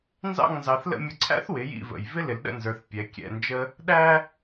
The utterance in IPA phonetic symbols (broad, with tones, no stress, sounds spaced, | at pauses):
n z ɑ̰˥˨ ŋ n z ɑ˩˧ θ l ə̰˥˨ mʲ ə˧ ǀʰ æ̰˥ θ w ɪ˩˧ j ḭ˥˨ v ə̰˨˩ j v ɪ˥ l ɪ˩˧ l ɗ ə̰˥˨ n z ə˞˩˧ θ pʲ ɛ˩˧ kʲ ɛ̰˨˩ n d͡ʒ ə˧ | ɗ æ˥